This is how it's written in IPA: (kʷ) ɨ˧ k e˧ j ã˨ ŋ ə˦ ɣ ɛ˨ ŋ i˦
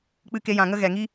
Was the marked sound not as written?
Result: yes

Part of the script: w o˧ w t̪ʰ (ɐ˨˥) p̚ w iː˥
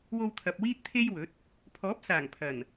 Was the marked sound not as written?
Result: yes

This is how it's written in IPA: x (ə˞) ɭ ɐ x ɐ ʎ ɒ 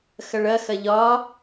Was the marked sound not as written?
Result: yes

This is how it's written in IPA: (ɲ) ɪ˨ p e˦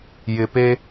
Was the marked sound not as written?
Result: yes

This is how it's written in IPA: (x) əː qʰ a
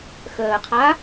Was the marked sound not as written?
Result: no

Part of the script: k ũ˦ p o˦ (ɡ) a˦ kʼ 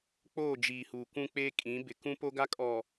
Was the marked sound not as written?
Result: no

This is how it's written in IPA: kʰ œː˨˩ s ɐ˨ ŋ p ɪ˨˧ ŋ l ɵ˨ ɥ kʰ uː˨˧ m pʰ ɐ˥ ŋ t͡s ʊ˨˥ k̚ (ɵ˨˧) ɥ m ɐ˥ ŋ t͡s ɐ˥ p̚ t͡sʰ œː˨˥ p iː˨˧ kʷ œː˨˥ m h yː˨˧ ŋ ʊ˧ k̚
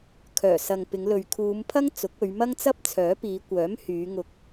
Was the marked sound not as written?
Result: no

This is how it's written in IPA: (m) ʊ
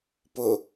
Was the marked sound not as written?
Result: yes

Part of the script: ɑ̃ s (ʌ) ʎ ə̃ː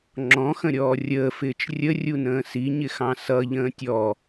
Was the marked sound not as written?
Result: no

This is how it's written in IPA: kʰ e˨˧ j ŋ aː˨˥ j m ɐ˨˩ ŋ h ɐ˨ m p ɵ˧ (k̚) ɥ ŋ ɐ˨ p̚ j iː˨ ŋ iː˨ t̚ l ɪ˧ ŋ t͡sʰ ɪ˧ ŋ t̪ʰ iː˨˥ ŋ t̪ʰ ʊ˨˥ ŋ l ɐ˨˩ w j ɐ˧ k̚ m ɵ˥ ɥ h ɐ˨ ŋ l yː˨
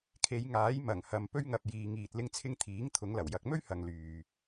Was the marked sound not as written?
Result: yes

